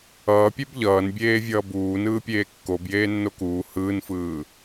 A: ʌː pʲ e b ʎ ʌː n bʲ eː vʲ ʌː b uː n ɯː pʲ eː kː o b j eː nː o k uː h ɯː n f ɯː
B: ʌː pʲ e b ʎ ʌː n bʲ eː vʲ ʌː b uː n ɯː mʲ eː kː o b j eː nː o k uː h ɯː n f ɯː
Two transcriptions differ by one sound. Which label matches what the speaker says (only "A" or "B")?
A